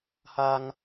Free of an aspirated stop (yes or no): yes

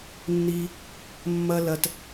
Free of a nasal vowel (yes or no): yes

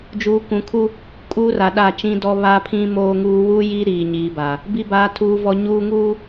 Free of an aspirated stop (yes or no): no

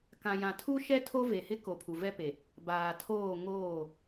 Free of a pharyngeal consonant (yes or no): yes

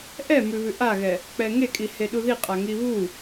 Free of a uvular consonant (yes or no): no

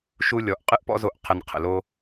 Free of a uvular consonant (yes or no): no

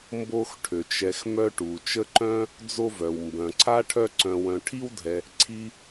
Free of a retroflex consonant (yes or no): no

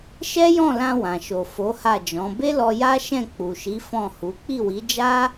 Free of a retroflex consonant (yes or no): yes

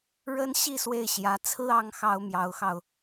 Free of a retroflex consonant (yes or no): no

